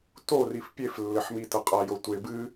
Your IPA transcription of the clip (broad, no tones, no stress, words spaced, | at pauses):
torif pʲeflːɘħmi tɐqʼajo tʷe bɨ